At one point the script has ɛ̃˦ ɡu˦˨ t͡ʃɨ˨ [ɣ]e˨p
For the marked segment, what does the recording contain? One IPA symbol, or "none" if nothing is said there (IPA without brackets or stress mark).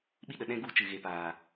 ɣ